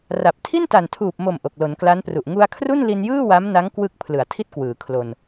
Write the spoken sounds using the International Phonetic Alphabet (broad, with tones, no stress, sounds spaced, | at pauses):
r a˨˩ p̚ tʰ i˥˩ n t a˨˩ n tʰ uː˨˩ p̚ m o˨˩ m ʔ o˨˩ k̚ l o˩˦ n k l a˦˥ n p r u˨˩ ʔ ŋ u˧ a̯ kʰ r u˥˩ n l i˧ n j ɯː˥˩ w a˦˥ m n a˦˥ ŋ k w ɯ˦˥ k̚ pʰ l ɯ˨˩ a̯ tʰ i˥˩ t̚ k w ɯː˩˦ kʰ l o˧ n